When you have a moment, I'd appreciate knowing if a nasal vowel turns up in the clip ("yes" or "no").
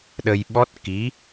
no